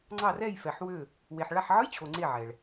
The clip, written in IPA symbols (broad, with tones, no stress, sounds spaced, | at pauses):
ŋ͡ǀ ɑ˧˩ r ɛ˧˩ j f ɛ˩ ħ w ø˧˩ | w e˩ ħ ɭ a˧˩ ħ ʕ ɯ˧˥˧ j t͡ɕʰ o˩ ŋ͡ǀ e˧˩ ʕ ɛ˩ ɭ